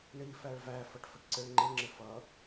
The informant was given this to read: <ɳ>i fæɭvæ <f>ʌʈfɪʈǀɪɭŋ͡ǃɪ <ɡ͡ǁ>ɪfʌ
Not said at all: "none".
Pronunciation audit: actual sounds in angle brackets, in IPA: ɳ, f, ŋ͡ǁ

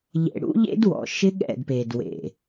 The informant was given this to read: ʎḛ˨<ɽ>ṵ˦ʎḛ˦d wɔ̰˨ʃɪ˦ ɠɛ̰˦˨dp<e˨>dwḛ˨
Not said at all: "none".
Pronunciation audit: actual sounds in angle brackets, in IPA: ɽ, e˨

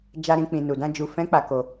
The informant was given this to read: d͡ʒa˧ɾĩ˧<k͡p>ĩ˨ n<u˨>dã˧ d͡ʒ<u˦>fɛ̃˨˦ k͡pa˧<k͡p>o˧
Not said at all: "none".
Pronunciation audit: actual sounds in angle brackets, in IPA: k͡p, u˨, u˨, k

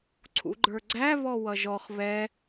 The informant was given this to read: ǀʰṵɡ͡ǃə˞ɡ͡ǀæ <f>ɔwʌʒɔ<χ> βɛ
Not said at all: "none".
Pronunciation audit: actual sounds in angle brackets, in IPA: β, χ

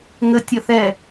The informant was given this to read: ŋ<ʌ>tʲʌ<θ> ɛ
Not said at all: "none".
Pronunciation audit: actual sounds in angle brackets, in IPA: ə, θ

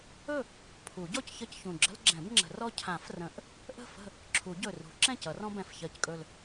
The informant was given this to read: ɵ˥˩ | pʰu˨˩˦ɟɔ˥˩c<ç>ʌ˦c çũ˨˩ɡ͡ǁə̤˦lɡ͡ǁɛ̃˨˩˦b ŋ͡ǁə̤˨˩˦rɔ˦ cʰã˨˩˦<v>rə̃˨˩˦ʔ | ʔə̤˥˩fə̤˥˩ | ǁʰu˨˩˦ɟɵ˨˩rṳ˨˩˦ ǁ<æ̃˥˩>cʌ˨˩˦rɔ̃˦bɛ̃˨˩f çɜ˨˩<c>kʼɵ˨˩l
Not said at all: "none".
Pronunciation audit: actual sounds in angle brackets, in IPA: ç, f, ɛ̃˥˩, c

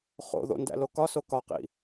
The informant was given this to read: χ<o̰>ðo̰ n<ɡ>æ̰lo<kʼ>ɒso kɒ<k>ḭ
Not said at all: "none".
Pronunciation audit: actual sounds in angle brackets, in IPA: o̰, d, k, q

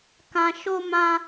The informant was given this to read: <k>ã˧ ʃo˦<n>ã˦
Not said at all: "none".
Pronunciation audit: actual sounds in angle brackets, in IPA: k, m

